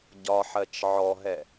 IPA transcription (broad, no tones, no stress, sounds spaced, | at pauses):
ɟ ɒ ħ ɜ t͡ʃ ʕ ɔ ɦ ɛ